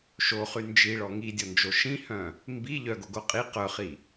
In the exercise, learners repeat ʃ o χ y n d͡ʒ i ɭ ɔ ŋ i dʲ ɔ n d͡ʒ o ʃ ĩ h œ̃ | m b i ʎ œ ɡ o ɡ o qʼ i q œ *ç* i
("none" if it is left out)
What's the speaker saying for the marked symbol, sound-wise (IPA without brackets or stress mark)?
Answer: χ